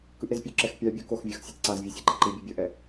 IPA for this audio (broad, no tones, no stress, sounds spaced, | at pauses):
k ɯ ʔ ɾ e z pʲ u ǁ ɛ x pʲ a bʲ u k o x vʲ ʌ x sʲ ʌ t ǀ a z vʲ u sʲ e ǃ i ǃ i bʲ u bʲ ʌ ʔ ɛ